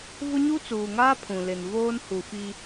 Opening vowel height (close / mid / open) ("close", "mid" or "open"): close